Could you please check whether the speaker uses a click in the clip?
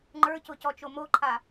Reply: yes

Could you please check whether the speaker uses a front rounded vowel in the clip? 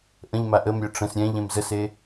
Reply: yes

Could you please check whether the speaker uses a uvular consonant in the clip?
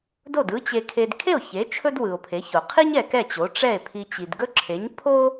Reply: yes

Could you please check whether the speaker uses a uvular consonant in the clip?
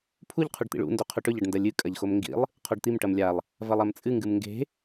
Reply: yes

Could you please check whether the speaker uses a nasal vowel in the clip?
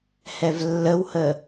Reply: no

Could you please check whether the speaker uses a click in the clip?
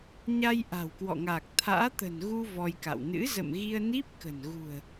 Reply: no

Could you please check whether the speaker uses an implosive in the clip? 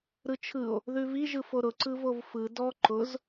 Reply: no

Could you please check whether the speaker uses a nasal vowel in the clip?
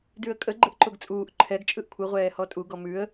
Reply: no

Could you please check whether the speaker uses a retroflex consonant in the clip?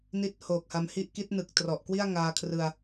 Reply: no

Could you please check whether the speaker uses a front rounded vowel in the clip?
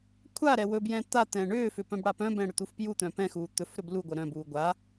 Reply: yes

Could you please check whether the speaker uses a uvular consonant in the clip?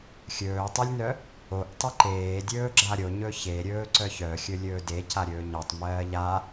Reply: no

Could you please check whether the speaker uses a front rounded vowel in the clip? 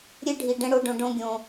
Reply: no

